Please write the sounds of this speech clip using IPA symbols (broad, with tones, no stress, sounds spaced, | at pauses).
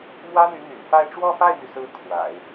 m w ä˥ n̪ y˧˥ n̪ y̰˨˩ n f a˥˧ ɪ̯ ʈ͡ʂ w ɔ˥˧ f a˥˩ ɪ̯ m y˩ s ɹ̩˧˥ kʰ w a̰˨˩˦ ɪ̯